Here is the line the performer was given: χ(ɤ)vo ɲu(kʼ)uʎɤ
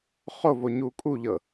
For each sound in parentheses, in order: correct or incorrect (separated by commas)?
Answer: incorrect, correct